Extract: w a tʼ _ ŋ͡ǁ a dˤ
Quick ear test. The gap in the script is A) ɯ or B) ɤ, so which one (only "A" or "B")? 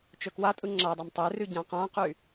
A